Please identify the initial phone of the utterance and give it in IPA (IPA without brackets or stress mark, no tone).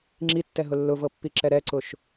ŋ͡ǁ